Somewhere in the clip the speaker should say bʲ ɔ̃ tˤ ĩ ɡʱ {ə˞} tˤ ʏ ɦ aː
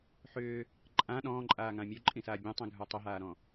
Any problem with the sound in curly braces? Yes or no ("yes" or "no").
no